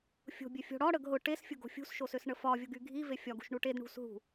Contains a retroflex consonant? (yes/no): yes